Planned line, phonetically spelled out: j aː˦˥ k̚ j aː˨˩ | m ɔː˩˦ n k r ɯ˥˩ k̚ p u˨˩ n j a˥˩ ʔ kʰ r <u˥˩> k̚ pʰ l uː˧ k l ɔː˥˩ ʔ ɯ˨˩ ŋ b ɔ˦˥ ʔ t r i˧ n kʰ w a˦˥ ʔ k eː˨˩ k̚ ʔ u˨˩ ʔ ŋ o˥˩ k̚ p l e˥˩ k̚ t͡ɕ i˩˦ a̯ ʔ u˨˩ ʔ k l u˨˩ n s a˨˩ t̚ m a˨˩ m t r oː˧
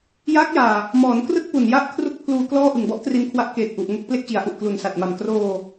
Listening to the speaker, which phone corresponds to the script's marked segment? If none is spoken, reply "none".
u˥˩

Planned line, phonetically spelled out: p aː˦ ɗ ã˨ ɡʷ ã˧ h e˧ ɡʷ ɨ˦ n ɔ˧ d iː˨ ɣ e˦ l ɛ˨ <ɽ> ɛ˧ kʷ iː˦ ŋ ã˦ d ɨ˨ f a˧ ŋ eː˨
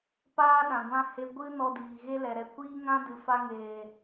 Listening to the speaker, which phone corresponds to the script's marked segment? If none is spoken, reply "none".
ɾ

